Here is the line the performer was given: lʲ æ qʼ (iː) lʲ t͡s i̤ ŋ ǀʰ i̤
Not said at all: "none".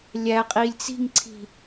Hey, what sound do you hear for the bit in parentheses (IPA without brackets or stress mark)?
iː